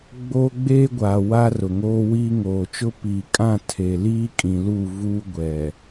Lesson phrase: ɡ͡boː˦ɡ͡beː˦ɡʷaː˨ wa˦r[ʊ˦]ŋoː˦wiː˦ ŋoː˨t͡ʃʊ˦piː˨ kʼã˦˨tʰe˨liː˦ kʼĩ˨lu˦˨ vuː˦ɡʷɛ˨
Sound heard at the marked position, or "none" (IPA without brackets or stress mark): ʊ˨